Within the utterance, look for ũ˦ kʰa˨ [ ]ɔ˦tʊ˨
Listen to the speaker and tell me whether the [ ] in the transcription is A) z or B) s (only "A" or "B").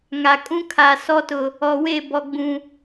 B